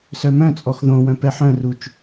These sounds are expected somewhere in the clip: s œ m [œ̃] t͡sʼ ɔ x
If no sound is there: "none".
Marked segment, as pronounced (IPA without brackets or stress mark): œ̃